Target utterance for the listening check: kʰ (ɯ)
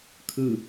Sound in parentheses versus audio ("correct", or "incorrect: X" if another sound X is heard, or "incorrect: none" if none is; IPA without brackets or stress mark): correct